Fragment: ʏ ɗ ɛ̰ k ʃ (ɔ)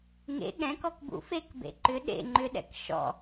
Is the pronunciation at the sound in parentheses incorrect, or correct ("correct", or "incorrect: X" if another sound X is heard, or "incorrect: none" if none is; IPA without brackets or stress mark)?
incorrect: ɔ̰